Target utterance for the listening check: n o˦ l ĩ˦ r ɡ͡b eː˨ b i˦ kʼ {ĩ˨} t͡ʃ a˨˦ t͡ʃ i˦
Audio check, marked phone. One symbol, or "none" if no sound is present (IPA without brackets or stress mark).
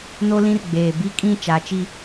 ĩ˦˨